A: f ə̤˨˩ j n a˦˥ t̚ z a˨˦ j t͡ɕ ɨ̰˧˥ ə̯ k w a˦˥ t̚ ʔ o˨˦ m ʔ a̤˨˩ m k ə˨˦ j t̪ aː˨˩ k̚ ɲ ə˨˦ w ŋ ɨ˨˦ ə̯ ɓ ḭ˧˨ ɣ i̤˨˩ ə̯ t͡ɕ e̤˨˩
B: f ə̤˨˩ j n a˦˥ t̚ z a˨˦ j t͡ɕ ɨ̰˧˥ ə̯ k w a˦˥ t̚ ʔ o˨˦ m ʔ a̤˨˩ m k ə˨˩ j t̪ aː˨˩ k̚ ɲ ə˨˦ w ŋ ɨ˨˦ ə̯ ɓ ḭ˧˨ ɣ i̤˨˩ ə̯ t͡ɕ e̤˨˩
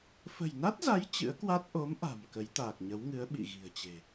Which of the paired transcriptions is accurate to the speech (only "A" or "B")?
A